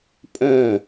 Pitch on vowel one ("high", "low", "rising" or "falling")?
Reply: falling